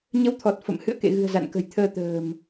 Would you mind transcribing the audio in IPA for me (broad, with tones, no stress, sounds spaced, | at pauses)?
ɲ ə˨˦ w t̪ʰ ɔ˨˩ t̚ f ə̰˧˨ m h ɨ̰˧˨ ə̯ k ḛ˧˨ ɣ ɨ̤˨˩ ə̯ z a̰˧˨ n k ə̤˨˩ j t̪ʰ əː˧ t̪ ə̤ː˨˩ m